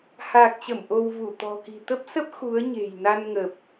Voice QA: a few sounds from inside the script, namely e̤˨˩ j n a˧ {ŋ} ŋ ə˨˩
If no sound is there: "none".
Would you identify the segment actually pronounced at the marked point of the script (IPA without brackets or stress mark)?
n